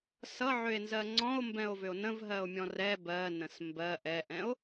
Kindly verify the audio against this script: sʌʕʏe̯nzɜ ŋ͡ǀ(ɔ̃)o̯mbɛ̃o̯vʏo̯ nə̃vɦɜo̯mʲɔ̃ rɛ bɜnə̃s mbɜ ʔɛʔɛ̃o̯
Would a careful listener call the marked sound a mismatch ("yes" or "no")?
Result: no